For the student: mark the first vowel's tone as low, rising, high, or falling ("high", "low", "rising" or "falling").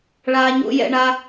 low